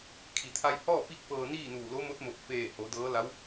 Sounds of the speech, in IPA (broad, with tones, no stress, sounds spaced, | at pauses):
kʰ i˩ t̪ʰ a˧ j h ɔː˥˨ p i˥˨ k̚ p ɤː˧ n iː˥˨ n uː˧˩ l o˧˥ m o˧˥ t̚ m o˧˩ p̚ f eː˧˩ h o˩˧ d ɤː˧˥ l a˧˥ w